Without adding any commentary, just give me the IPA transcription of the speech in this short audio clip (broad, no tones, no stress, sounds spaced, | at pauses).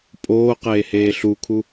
pʼ oː q eː h eː ɬ u kʰ u